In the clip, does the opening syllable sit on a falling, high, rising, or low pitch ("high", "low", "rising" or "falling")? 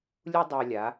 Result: high